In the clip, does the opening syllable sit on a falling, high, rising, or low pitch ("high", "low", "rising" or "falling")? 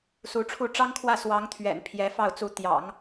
rising